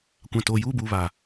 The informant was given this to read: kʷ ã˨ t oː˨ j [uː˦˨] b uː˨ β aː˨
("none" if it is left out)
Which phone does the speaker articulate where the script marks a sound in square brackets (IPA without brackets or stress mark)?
uː˦˨